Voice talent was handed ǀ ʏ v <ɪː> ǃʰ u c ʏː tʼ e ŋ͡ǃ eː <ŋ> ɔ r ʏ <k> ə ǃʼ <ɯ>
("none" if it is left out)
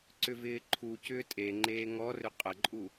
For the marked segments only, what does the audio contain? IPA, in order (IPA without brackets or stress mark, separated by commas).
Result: ɪː, ŋ, qʼ, u